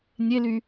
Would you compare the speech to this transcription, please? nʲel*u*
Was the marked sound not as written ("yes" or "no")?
yes